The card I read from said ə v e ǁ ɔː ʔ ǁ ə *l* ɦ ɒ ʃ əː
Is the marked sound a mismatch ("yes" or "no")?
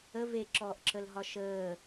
no